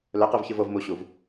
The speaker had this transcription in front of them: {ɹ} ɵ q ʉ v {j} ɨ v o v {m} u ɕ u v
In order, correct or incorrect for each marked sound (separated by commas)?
incorrect, incorrect, correct